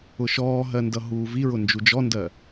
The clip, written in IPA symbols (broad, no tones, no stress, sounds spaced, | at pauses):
ʊ ʃ ɔː ɦ ɜ n d ʌ ɦ uː v i ɹ ʊ n d͡ʒ u d͡ʒ ɔ n d ɜ